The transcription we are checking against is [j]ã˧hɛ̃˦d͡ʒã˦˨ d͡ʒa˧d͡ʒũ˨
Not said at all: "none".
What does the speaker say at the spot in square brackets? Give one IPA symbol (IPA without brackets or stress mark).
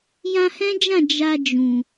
j